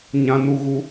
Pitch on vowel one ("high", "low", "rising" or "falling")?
high